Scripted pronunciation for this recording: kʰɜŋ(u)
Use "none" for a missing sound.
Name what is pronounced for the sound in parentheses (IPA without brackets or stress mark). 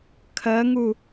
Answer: u